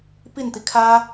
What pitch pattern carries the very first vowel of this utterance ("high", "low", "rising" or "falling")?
falling